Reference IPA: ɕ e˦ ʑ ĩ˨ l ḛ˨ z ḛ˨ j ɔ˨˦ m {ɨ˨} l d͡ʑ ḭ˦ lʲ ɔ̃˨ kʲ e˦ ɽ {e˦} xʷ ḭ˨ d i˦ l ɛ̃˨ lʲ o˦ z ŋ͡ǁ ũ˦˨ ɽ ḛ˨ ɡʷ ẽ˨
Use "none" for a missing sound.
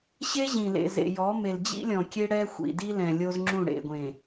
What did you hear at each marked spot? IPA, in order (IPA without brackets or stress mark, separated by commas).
e˨, ɛ˦